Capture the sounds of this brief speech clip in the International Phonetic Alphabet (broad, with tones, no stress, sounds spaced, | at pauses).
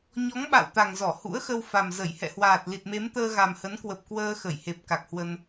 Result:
ɲ ɔ˨˦ ŋ ɓ a̰˧˨ w t̪ a˨˩ ŋ z ɔ˧˩ h ṵ˧˥ ə̯ x ə˧ w f a˨˩ m z ə˧˩ j h ɛ̰˧˨ h w aː˨˩ t̚ l i˨˩ t̚ m e˨˦ m t̪ əː˧ ɣ a˨˩ m h ə˨˦ n k w ə˨˩ p̚ k w əː˧ x ə˧˩ j h e˨˩ p̚ k a˨˩ k̚ h w ə˧ n